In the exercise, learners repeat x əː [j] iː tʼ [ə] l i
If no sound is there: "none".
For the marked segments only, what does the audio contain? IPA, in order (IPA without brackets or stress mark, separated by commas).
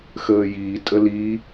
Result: j, ə